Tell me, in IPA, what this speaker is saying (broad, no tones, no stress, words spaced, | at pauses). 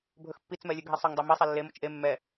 bʱɵxpːit͡s mɛlʲɵɡʱisˤɵŋ dˤomi sˤelːe mot͡ʃʔe mːɛ